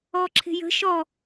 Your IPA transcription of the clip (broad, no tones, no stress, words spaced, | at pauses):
ɔǁʰe̤jə̤ ʃɔ